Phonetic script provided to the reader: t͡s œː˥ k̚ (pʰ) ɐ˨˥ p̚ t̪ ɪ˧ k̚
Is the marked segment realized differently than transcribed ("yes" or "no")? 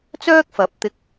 yes